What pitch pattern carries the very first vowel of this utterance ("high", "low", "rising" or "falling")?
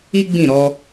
high